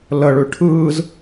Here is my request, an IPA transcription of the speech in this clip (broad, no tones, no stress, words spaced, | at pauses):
ləɭʉ ʈʰɯːz